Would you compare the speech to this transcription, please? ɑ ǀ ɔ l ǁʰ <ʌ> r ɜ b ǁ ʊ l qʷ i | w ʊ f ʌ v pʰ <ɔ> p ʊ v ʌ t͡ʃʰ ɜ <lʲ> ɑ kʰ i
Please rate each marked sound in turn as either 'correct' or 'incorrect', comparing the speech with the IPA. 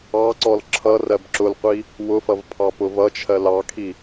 correct, incorrect, incorrect

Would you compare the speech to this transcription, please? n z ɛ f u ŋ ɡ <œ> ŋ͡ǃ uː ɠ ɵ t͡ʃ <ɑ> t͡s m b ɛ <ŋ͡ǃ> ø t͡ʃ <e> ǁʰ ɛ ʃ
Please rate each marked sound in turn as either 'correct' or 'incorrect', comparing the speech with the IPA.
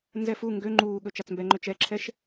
incorrect, correct, correct, incorrect

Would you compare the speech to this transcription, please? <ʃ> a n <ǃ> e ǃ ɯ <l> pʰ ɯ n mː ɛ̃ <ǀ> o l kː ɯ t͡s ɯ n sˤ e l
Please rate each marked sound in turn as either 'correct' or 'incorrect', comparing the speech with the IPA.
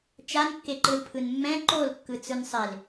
incorrect, incorrect, correct, incorrect

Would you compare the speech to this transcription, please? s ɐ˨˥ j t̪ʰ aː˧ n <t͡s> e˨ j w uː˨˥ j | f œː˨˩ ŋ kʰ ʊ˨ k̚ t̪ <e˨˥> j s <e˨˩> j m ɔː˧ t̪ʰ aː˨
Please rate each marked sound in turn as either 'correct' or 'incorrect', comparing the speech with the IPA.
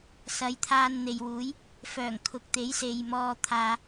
incorrect, correct, incorrect

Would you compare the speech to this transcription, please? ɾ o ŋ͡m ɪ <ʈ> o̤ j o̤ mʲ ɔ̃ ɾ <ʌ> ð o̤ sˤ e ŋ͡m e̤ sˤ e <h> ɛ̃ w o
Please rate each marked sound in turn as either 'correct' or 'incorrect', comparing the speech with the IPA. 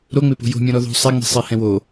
incorrect, incorrect, correct

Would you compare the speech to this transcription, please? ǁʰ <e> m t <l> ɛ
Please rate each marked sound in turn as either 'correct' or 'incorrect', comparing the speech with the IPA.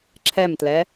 incorrect, correct

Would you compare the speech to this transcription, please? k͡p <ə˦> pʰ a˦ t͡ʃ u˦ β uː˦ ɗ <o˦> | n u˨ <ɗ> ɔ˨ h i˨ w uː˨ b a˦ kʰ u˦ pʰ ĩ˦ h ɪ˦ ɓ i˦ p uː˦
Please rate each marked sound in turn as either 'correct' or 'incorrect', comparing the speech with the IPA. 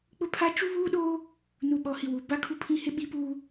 incorrect, incorrect, incorrect

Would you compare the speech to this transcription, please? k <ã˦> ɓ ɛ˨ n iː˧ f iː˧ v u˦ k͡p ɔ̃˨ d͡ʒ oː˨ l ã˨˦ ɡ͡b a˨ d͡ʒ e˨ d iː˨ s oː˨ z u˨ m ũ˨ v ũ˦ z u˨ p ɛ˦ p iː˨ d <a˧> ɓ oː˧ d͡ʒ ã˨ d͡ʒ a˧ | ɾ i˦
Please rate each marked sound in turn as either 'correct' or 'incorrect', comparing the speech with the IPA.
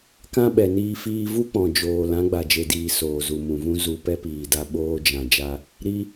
correct, correct

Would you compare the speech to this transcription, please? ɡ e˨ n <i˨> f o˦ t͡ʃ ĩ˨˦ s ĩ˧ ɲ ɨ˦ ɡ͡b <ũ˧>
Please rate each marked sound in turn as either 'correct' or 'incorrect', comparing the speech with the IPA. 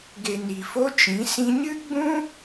correct, incorrect

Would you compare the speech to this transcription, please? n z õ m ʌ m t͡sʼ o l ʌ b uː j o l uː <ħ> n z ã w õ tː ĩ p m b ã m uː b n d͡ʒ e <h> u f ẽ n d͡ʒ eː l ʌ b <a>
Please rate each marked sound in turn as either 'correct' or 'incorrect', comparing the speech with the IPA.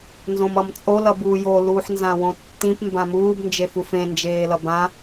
correct, incorrect, incorrect

